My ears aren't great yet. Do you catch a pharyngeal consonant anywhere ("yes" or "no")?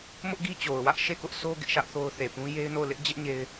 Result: no